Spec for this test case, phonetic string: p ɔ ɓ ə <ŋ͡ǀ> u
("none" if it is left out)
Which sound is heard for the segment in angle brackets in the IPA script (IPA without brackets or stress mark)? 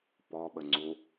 ŋ͡ǀ